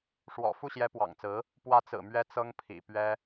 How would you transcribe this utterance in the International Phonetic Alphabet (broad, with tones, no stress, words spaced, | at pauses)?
ʂwɔ̰˨˩ fu˥˩ɕjɛ˧˥pwɑ̰˨˩ŋt͡sɹ̩˧˥ | pwä˧˥t͡sɹ̩˨˩mɥɛ˧˥ t͡sɤ˥ŋpʰḭ˨˩pɥɛ˥